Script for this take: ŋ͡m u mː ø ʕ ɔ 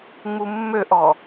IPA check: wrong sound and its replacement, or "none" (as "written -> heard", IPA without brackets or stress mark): ʕ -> ʔ